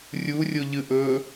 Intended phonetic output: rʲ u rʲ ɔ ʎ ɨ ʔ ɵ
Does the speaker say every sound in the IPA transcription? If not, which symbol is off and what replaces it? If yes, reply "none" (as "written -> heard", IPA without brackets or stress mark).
ɔ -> o